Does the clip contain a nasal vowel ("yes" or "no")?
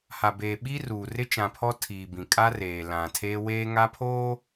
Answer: yes